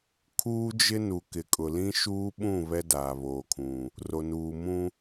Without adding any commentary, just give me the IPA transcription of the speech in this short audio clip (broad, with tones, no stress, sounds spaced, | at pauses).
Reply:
kʰ uː˦ d͡ʒ ɪ˦ n u˨ k ɪ˨ kʼ ʊ˨ l ĩ˦ ʃ uː˦ ɓ ũ˦˨ β ɛ˦ d aː˨ β oː˨ kʰ ũ˨ | r o˨ n uː˨ m ũ˦